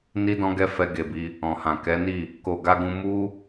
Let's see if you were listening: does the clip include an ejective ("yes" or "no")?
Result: no